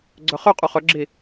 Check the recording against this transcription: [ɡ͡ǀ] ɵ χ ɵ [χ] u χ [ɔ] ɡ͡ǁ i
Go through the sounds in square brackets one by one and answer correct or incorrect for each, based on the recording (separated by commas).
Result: correct, incorrect, incorrect